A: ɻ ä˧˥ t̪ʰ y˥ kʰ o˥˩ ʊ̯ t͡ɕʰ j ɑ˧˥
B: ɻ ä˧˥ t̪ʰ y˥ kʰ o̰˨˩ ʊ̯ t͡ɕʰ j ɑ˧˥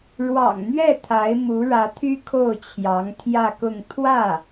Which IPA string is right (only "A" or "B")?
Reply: A